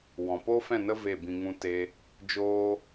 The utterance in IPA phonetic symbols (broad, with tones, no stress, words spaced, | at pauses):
wɔ̃˨po˦fɛ̃˦˨nə˦ ve˦˨bĩ˧ŋũ˦ te˦ | d͡ʒoː˦